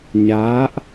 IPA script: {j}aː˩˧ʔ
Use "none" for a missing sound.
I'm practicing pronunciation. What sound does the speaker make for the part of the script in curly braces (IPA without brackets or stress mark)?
ɲ